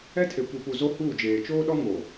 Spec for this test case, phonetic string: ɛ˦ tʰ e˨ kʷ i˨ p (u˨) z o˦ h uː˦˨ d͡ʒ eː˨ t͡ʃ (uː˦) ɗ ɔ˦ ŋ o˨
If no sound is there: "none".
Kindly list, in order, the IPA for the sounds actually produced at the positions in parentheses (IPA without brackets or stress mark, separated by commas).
u˨, oː˦